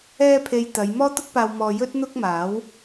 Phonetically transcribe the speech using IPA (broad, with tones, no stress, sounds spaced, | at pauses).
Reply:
ɛː˧ pʰ e˨ j t̪ ɐ˨˧ j m ɔː˥ t̪ ʊ˥ k̚ p aː˧ w m ɔː˧ j ɵ˥ t̚ n̪ ʊ˥ k̚ m aː˨˥ w